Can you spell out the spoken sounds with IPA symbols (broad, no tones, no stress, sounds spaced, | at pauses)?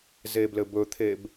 z e b l ɘ b ɵ t̪ʰ e b